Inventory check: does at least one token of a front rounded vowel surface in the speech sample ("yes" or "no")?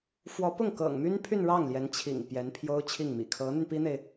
yes